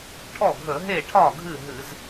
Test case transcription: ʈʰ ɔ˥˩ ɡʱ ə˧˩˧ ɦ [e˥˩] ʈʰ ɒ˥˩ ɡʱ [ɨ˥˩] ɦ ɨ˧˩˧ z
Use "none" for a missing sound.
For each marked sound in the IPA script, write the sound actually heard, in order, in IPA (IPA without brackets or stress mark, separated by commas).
e˥˩, ɨ˥˩